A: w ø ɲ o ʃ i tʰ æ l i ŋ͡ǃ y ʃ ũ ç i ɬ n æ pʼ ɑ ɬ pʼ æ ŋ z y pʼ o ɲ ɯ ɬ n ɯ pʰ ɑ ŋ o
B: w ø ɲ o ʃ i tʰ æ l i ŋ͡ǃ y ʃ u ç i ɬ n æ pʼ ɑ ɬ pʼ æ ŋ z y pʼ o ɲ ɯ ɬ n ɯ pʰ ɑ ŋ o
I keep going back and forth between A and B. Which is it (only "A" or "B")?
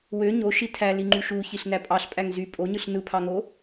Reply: B